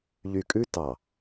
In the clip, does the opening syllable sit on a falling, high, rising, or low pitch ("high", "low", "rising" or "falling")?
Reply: low